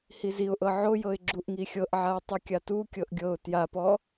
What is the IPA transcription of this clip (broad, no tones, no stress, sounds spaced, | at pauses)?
h i z i ʊ̯ ʔ ɤ ʕ o j ɤ ɪ̯ ɡ͡ǁ u ʔ ŋ i xʲ ɤ ʔ ʕ a ʊ̯ tˤ ɯ kʲ a t u kʲ ɤ ʔ ɡʲ ɤ ʊ̯ t j a p ɔ